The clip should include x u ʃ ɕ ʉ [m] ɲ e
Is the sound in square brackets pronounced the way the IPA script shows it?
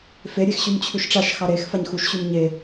yes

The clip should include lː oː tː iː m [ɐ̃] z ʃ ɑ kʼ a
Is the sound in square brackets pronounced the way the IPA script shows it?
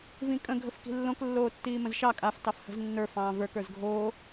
no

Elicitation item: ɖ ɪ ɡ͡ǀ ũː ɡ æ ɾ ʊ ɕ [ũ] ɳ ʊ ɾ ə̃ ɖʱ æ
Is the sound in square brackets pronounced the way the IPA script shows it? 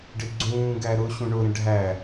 yes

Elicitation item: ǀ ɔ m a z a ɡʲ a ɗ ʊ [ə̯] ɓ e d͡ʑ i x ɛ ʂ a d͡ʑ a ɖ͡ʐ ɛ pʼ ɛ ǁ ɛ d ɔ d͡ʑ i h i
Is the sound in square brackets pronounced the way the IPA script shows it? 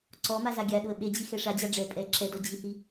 yes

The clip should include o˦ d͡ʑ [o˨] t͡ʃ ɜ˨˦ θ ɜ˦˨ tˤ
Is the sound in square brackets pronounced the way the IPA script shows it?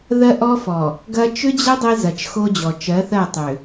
no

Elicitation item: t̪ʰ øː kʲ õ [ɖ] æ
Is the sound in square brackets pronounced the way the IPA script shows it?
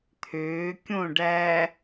yes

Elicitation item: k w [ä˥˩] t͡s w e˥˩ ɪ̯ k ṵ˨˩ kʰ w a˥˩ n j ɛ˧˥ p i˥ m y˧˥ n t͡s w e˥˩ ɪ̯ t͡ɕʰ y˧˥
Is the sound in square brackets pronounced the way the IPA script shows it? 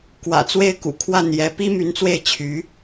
no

